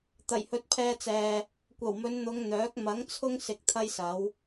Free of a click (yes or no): yes